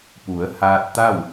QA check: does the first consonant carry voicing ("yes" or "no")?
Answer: no